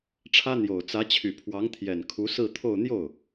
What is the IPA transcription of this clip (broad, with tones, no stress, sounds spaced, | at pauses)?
ʈ͡ʂʰ ä˥ n̪ j o˨˩ ʊ̯ t͡s ä˧˥ t͡ɕʰ y˨˩ pʰ w ɑ˧˥ ŋ t̪ʰ j ɛ˨˩ n kʰ u˧˥ s ɹ̩˥˧ t̪ʰ o˥˧ ʊ̯ n̪ j o˥˩ ʊ̯